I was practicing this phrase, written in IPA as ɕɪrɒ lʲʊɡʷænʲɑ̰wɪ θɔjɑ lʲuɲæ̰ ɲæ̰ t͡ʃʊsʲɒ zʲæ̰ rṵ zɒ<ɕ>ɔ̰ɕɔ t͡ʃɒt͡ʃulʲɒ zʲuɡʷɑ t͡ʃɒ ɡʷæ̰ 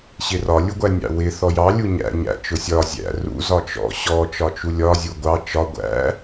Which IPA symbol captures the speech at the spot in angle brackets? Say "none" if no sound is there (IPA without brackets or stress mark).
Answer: t͡ʃ